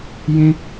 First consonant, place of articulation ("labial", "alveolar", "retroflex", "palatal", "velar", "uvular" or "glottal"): palatal